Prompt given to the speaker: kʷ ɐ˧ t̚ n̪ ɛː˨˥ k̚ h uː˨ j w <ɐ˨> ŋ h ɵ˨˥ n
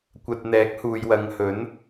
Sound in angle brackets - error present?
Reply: yes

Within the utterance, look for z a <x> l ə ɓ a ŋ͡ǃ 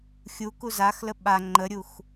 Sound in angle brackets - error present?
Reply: no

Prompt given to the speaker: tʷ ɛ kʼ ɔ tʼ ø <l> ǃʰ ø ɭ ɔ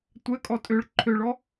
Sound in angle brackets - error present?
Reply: yes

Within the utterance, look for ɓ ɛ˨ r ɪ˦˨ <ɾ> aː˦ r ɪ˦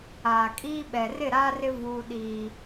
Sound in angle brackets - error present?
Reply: no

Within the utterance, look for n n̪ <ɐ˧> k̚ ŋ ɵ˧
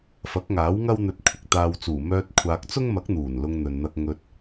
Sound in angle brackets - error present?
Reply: no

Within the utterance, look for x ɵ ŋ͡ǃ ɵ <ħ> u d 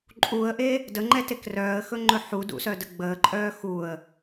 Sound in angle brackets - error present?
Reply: no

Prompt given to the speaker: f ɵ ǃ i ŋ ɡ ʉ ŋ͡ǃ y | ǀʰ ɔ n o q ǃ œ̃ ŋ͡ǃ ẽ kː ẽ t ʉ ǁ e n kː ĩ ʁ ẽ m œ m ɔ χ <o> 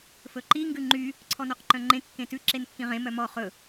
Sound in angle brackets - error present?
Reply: yes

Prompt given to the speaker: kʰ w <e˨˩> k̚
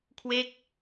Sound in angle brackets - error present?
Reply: yes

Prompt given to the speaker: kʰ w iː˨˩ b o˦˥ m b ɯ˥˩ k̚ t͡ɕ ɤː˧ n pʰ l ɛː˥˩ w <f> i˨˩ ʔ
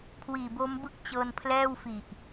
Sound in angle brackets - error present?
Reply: no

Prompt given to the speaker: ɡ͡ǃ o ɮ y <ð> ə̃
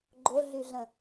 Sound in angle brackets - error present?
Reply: yes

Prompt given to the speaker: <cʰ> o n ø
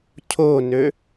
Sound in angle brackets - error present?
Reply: no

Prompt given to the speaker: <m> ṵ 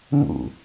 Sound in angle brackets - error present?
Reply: no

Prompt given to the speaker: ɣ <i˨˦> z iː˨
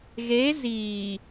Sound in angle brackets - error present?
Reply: yes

